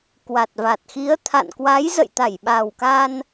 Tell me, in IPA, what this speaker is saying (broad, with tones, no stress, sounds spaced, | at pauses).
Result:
k w a˨˩ t̚ v a˨˩ t̚ x i˨˦ ə̯ t̪ʰ a̰˧˨ n k w a˨˦ j z ə̰˧˨ j t̪ a˧˩ j ɓ a˨˩ w k a˧ n